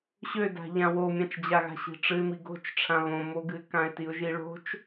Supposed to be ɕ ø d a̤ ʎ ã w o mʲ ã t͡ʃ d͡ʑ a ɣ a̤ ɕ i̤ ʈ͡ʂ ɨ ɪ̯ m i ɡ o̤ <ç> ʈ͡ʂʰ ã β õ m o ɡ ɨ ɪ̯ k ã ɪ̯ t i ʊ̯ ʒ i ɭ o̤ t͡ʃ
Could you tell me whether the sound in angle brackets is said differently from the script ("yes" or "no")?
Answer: yes